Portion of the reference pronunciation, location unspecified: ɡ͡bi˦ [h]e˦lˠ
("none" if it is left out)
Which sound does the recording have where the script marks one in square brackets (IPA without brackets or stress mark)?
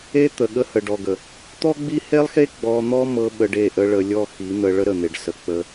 h